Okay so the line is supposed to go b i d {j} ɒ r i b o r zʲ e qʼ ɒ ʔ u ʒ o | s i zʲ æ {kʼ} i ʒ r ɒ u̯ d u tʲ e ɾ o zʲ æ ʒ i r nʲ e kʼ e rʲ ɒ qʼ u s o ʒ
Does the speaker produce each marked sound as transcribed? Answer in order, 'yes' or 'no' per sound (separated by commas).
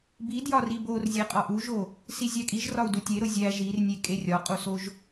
yes, yes